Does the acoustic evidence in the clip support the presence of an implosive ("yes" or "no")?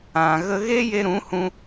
no